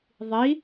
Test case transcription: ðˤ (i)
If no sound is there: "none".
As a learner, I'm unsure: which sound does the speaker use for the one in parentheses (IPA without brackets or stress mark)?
i